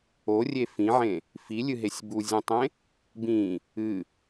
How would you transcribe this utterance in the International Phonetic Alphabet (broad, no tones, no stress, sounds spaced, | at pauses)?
o rʲ e f ĩ ʕ ẽ | f i lʲ ɨ ɦ e sʲ b u zʲ ẽ tˤ ẽ | b ĩ | ɨ